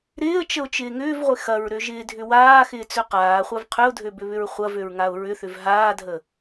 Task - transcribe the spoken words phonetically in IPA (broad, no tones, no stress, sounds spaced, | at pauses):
ɾ ɪː ə̯ t͡ʃ ə ʊ̯ t͡ʃ ɪː ŋ ʏː v ʁʷ ɪ x ɐ ɹ ɾ ø ʒ ɪː dʱ ʏ w aː x ɪː t͡s ø q aː χʷ a v qʰ ʏ ʊ̯ dʱ ø b ʏ β ʏ ɹ χʷ ɐ v ø ɹ ŋ a ʊ̯ ɹ ʏ θ ʏ v ɦ aː dʱ ə